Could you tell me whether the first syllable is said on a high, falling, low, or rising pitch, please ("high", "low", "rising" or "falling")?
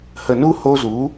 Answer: low